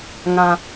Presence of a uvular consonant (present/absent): absent